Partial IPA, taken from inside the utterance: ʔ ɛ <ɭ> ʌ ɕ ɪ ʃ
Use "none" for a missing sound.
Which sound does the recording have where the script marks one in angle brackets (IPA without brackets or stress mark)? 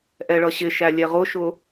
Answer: ɭ